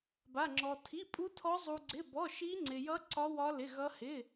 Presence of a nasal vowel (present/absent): absent